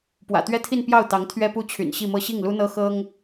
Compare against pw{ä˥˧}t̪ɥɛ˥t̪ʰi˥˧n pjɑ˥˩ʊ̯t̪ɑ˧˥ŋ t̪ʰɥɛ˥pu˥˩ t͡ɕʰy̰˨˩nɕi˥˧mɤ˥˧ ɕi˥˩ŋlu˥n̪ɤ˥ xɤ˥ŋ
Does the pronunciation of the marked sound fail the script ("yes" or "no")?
yes